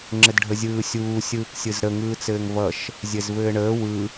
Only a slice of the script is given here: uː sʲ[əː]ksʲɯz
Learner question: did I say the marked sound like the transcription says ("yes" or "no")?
no